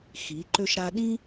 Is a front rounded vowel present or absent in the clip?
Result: present